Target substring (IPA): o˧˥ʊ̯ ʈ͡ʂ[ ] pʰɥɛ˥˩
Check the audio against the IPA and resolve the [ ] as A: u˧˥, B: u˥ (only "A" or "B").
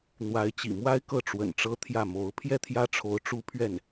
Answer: B